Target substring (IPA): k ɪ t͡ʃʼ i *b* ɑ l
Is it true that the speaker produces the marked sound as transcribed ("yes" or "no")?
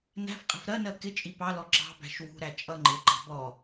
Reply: no